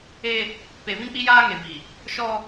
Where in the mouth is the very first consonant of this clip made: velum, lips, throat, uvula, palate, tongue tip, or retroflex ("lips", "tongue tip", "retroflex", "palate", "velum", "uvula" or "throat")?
lips